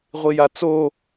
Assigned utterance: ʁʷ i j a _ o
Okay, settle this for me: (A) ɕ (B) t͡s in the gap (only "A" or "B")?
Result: B